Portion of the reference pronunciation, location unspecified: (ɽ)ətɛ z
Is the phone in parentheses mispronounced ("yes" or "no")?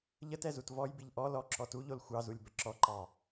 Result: yes